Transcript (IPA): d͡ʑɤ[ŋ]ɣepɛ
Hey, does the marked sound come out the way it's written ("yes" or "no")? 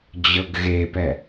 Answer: no